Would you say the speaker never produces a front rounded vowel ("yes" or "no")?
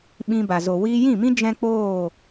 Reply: yes